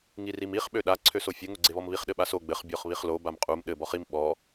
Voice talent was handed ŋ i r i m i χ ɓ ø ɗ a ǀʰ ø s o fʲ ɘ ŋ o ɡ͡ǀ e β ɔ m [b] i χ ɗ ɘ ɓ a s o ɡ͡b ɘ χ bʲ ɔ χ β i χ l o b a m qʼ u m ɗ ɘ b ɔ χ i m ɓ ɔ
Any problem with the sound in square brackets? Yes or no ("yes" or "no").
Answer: yes